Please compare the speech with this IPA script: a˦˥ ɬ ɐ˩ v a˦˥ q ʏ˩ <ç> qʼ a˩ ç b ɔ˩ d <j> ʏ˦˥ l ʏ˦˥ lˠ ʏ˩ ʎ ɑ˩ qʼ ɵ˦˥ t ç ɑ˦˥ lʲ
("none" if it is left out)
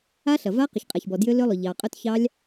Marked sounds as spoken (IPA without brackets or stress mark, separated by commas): ç, j